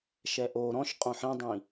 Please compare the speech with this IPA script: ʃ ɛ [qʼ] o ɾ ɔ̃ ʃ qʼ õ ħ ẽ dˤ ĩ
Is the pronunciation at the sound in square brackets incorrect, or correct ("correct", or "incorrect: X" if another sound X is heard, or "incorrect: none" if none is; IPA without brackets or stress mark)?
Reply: incorrect: ʔ